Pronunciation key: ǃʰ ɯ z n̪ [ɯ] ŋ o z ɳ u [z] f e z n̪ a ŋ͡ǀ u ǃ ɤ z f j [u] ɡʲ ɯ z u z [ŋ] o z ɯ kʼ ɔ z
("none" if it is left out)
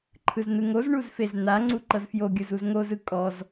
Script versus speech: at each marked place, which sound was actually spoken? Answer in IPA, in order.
ɯ, z, o, ŋ

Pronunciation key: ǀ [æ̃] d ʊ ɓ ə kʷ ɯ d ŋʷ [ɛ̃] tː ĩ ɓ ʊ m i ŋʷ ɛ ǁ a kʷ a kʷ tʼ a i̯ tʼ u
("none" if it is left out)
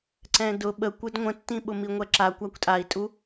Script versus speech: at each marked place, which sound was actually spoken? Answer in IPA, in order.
ɛ̃, ə̃

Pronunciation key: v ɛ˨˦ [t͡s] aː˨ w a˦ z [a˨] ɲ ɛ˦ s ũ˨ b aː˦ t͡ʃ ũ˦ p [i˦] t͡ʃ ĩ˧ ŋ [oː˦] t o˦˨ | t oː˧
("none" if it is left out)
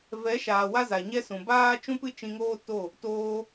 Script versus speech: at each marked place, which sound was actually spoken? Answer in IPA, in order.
ʃ, a˨, ɨ˦, oː˦

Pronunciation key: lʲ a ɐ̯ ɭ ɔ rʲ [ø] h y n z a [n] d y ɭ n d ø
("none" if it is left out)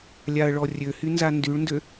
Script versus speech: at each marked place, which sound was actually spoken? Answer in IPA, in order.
ø, n

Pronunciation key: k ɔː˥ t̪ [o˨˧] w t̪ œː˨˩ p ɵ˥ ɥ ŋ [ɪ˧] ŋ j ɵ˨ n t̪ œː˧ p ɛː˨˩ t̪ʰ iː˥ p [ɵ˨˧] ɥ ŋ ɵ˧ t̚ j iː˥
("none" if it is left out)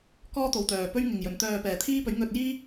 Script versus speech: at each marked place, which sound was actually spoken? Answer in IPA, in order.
o˨, ɪ˨, ɵ˨˥

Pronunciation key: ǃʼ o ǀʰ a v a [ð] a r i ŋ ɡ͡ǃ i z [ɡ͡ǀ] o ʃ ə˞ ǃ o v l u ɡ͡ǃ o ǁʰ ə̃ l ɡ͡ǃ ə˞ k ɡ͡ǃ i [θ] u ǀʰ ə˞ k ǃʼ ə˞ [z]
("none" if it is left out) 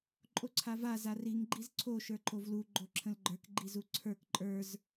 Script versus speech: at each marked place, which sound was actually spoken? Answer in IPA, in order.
z, ǀʰ, z, z

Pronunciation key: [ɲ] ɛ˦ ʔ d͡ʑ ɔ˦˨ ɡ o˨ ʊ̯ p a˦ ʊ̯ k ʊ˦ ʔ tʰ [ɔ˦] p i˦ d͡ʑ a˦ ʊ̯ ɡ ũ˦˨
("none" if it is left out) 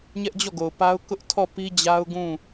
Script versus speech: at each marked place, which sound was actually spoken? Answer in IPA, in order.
ɲ, ɔ˦˨

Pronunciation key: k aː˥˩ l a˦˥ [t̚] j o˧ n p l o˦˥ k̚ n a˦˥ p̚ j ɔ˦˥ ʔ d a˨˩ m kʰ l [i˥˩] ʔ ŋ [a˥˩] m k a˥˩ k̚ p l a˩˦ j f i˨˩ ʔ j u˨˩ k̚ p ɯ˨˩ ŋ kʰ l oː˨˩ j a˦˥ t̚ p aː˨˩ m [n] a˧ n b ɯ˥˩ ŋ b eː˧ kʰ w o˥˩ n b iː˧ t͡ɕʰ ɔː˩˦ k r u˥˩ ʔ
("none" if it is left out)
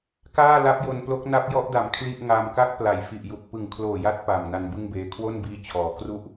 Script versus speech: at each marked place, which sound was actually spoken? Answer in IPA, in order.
p̚, i˥˩, a˧, n

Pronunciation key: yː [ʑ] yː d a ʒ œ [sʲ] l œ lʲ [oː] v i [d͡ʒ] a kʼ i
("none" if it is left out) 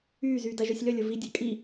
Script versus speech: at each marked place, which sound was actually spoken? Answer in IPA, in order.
z, sʲ, o, dʲ

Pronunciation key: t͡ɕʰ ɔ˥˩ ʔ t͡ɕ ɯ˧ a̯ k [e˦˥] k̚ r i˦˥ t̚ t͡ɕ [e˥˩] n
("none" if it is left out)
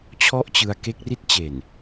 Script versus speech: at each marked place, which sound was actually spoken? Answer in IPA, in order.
e˦˥, e˨˩

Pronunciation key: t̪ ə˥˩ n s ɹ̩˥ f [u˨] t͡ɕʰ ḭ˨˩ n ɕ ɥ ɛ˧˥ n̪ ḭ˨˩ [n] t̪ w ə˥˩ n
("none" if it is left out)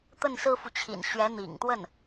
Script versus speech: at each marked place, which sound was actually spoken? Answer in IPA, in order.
u˨, ŋ

